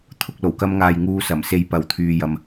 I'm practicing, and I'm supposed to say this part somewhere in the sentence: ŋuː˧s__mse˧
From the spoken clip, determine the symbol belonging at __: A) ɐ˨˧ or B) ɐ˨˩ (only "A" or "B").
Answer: B